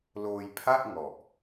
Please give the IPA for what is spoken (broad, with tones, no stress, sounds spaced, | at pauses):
l oː˧ j pʰ a˥˩ ʔ ŋ ɔ˨˩ ʔ